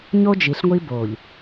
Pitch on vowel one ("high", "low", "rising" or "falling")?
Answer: high